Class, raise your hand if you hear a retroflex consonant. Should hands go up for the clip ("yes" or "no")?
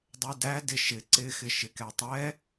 no